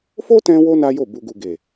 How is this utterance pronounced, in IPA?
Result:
fo˦tɛ̃˧wo˧ na˦jo˦˨ bu˨ɡu˨ɡe˨

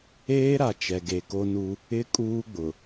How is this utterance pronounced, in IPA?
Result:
eː˦ɾa˨ t͡ʃɛ˨ɡe˨ko˦nu˦ | ɪ˦ kʼuː˦ɡ͡bʊ˨

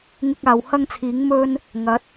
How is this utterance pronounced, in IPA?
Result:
ŋɪ˧k̚aː˨w hɐ˥ŋt͡sʰiː˨˥ŋ mɵ˥n | ŋɐ˨˥t̚

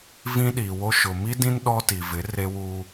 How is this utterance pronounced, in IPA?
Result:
vĩ˦ɗiː˨wo˦ ʃʊ˨mi˦dĩ˦n ɗɔ˦ti˨ vɪ˨˦ re˦wuː˦

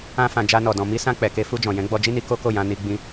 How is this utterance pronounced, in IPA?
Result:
ã˧fã˨ d͡ʒa˧nɔ˨dɔ̃˨ mi˧sã˧ k͡pɛ˨ke˧fu˧d͡ʒɔ̃˨ jɛ̃˨˦ɡ͡bɔ˧d͡ʒi˦ni˧ ko˦ko˦˨jã˧ ni˧ ɡ͡bĩ˧

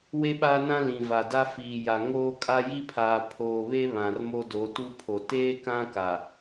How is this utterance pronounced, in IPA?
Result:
we˦ɓaː˦nã˦ lĩ˨va˨da˦ fiː˨ja˨ ŋoː˦kʼa˦ ji˦pʰaː˨ pʰoː˨βe˦ βã˨rmo˦do˨˦ tu˦ pʰo˨ teː˦kã˦ ka˨

